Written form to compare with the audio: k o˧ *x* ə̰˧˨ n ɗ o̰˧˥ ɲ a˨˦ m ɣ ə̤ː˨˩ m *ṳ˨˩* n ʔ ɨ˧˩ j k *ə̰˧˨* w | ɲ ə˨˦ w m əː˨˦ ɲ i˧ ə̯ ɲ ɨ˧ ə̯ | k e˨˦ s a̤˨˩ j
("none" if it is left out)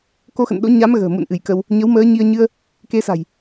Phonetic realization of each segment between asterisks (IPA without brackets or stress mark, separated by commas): x, ṵ˧˨, ə˧